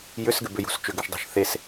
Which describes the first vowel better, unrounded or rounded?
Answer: rounded